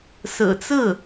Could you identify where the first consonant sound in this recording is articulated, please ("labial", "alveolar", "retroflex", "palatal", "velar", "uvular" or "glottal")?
alveolar